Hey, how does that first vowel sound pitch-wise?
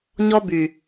high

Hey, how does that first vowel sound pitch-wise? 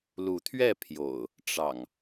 rising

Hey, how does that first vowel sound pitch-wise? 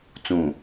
low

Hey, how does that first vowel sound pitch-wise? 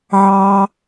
low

